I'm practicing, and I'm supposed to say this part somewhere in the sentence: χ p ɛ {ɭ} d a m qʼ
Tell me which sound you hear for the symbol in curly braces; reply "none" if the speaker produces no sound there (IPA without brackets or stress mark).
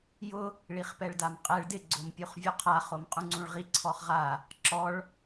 ɭ